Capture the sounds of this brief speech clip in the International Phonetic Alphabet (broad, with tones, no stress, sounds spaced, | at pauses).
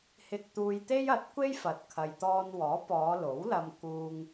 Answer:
h ɪ˧ k̚ t̪ uː˧ j t̪ e˥ j ɐ˨˥ t̚ kʷ e˥ j f ɐ˨ t̚ kʰ ɐ˨ j t̪ ɔː˧ n w ɔː˨˥ p ɔː˨˧ l o˨˥ w l ɐ˧ m k uː˧ ŋ